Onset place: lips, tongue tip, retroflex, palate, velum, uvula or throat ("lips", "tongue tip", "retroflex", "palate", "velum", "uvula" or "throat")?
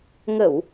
velum